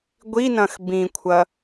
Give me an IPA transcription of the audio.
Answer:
ɡʷ i n ɐ̃ x b ĩ kʷʰ ɐ

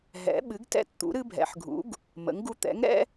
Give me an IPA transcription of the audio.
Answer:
ɦ ɛ̰˩˥ ɓ ɨ˩˥ ɡ t ɛ̰˦ t t̪ ṵ˩˥ ɾ ɨ˦ bʱ ɛ̰˩˥ ħ ɡʱ ṵ˩˥ ɡ | m ə̰˩˥ ŋ ɡ u˦ t̪ ɛ̰˩˥ ŋ ɾ ɛ̰˦

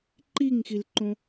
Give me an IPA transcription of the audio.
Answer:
ǃ i ŋ x i l ǃ õ

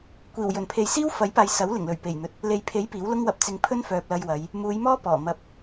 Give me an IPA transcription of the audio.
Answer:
kʷ iː˨˩ w j ɵ˨˩ n pʰ e˨ j s iː˥ w f ɐ˨˥ j p aː˨ j s ɐ˨˥ w l ɪ˨˩ ŋ l ɵ˨˩ ɥ p e˨˩ j n̪ ɵ˨ t̚ | l e˨ j pʰ e˨˥ j p iː˨˥ w l ʊ˥ ŋ w ɐ˧ p̚ t͡s ɪ˧ ŋ pʰ ɵ˥ n f œː˨ p̚ l ɐ˧ j w ɐ˨˧ j | m uː˨˧ j m ɔː˥ p ɔː˨˩ m ɐ˨˥ p̚

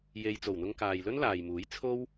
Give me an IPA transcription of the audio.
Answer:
j e˨ j t͡s o˨˩ w n̪ ʊ˧ ŋ k aː˨ j l ɵ˥ n l aː˨ j m uː˨˥ j t͡sʰ o˥ w

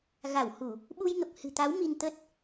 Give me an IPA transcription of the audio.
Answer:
ɣ a˧˩ w h u˧˩˨ | ɓ u˧ j ŋ ə˨˩ p̚ h ɨ̤˨˩ t̪ a˨˦ w m i˧ n t̪ ə˦˥ t̚

